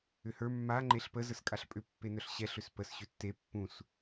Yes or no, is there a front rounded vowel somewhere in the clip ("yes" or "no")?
yes